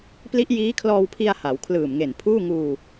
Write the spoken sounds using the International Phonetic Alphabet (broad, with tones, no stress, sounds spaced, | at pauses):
p l i˦˥ ʔ j iː˦˥ kʰ l ɔː˧ w pʰ i˧ a̯ h a˩˦ w kʰ l ɯː˨˩ m ŋ e˨˩ n pʰ uː˥˩ ŋ uː˧